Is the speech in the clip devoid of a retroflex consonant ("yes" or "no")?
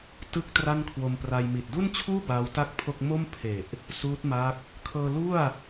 yes